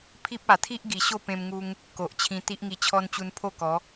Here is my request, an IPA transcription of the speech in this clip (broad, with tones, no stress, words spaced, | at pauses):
pʰi˦p̚ a˨˩t̪ʰi˦ʔ ɡi˨˩ɕo˥˧pẽ˧mŋu˧ŋ | ko˨ʔt͡ɕʰĩ˧ t̪i˦ʔŋi˧t͡ɕʰɔ˦n t͡ɕu˧npʰo˥˧kɔ˨˦